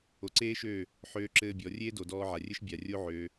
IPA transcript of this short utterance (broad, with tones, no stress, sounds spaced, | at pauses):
o˨ ǀ eː˦ ʃ øː˦˨ | ħ øː˦ ǁ ɘː˦ bʲ ɔ˨˦ rʲ eː˦ d o˨ d ɔː˧ ʕ a˨ rʲ ɘ˦ ʃ bʲ a˨ rʲ o˦ ʕ øː˧